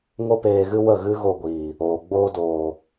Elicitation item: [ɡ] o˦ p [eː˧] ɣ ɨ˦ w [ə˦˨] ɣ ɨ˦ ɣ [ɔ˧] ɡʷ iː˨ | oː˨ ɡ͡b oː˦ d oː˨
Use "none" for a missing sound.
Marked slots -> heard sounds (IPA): ŋ, eː˧, ə˦˨, o˧

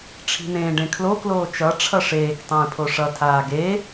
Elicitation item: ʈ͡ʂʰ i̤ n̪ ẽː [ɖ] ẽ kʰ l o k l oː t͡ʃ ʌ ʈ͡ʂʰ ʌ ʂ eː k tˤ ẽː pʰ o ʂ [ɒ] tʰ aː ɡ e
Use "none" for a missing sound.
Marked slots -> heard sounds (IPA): ɖ, ʌ

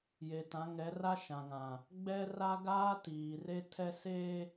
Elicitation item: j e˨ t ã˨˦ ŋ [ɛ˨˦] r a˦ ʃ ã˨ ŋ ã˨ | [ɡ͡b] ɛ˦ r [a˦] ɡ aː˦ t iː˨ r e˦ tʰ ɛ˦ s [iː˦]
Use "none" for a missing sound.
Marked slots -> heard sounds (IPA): ɛ˨˦, ɡ͡b, a˦, eː˦

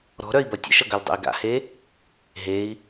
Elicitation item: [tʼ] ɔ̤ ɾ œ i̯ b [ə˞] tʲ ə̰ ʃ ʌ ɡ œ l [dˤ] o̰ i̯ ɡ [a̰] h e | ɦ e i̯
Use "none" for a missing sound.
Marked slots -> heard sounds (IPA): ɾ, ʌ, dˤ, a̰

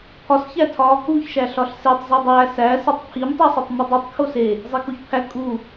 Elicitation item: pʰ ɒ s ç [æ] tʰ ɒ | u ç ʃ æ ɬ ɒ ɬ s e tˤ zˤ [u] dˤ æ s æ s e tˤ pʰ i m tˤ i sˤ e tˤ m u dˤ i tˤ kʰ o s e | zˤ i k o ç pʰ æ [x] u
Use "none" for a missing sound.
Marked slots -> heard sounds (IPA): æ, u, kʼ

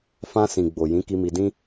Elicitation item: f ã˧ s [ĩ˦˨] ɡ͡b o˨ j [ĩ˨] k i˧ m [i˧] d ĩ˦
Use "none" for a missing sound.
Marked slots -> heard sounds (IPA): ĩ˨, ĩ˨˦, i˧

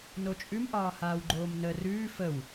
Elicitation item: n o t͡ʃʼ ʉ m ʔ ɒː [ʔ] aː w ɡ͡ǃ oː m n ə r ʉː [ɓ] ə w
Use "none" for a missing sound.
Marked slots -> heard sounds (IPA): h, f

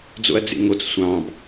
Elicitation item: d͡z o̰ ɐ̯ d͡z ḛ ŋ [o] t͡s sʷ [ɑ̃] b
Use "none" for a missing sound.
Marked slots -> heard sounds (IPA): o, ɑ̃

